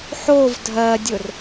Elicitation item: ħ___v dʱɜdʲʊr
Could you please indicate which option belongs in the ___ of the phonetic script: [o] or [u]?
o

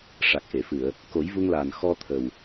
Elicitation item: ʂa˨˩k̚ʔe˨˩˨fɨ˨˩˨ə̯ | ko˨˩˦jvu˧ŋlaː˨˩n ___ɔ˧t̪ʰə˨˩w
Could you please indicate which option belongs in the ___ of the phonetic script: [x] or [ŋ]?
x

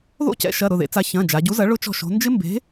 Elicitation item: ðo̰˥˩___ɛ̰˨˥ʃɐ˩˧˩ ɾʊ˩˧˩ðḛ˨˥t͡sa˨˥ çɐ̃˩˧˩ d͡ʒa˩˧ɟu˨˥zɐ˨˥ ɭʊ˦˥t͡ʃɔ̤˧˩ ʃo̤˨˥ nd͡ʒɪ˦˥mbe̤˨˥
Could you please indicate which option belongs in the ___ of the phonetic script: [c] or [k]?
c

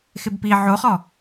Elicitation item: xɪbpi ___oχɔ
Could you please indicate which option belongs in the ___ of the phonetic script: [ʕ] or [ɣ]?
ʕ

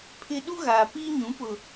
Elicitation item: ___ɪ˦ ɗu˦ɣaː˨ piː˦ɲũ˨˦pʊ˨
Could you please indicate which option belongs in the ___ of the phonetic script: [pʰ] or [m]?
pʰ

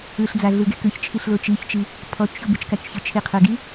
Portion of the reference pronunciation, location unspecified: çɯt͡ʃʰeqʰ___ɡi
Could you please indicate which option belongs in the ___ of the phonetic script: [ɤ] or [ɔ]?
ɤ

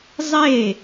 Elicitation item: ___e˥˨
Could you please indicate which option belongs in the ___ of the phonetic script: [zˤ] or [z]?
zˤ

